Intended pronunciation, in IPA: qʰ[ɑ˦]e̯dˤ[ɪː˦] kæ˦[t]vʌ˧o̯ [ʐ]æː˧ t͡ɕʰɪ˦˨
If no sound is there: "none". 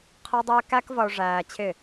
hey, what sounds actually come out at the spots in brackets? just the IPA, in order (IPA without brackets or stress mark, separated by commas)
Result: ə˦, ɪː˦, k, ʐ